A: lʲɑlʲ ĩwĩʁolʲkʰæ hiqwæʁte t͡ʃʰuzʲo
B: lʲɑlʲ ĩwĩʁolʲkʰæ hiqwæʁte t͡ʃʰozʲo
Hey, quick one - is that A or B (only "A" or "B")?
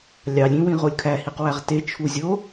A